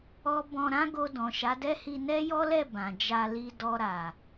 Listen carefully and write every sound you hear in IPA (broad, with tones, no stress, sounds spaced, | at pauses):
ɔ˦ b ɔ̃˧ ɾ ã˦ ɡ o˧ d ɔ̃˨ ʃ a˨˦ d ɛ˦ h i˧ n ɛ˦ j ɔ˦ l ɛ˦˨ b ã˨ d͡ʒ a˧ l i˧ d ɔ˧ ɾ a˨